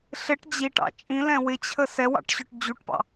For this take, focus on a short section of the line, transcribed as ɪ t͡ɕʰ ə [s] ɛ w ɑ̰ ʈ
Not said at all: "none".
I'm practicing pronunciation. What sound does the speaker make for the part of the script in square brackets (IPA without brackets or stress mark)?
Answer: s